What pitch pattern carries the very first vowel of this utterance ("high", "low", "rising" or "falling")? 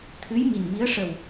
rising